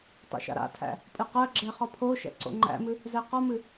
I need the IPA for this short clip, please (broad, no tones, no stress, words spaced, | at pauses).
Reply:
tˤo̰ʃa̰ɾa̰tʰæ̰ | pʼɨqɜɡ͡ǁɛ χɒpʰoʃɛ̰ ǀo̰ŋ͡ǃæ̰mɨ | zɛqɒmɨ